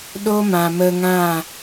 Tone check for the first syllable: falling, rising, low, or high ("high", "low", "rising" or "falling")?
high